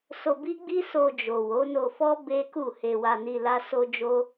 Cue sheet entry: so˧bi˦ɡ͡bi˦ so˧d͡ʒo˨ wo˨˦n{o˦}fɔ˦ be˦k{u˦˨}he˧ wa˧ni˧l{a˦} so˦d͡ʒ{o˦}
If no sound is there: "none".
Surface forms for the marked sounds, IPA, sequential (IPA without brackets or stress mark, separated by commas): o˧, u˦˨, a˦, o˦